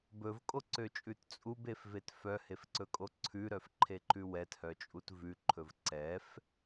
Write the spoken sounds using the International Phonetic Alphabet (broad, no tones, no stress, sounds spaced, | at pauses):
b ɵ v kʼ o ǀ ø t͡ʃʼ ʉ t t͡sʼ u b e f v e t f œ h e f ǀ ɵ kʼ o ǀʰ ʉ ɾ œ f ǃʰ e ǃ ʉ w ɛ t h œ t͡ʃʼ u t v ʉ ǃʰ ɵ v ǀ ɛ f